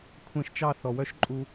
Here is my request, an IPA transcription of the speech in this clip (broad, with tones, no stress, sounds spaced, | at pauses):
kʷʰ ɛ̃˧ ʃ t͡ʃ ɑ˦˨ θ ɔ˨ w œ˦ ʃ ǃʼ u˧